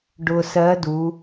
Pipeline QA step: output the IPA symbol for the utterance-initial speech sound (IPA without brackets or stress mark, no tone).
ɖ